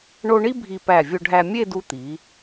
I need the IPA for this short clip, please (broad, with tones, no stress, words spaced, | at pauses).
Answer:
ɳo˥ ɳi˥bʱi˧pæ˧˩ vʲo˧ɖʱæ˧ mʲe˥˧du˧t̪i˩˧